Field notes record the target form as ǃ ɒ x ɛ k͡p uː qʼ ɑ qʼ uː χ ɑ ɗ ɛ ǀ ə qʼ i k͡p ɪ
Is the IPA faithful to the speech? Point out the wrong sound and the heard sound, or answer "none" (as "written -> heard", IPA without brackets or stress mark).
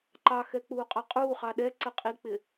ɒ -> ɑ